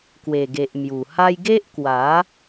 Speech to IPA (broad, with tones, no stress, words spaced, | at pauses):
kwe˨˩ɡe˨ʔ mju˨˩ha˦j ɡe˦ʔkwa˨˦